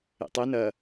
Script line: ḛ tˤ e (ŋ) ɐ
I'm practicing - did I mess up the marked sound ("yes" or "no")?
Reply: yes